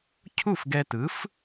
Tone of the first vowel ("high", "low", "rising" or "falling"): falling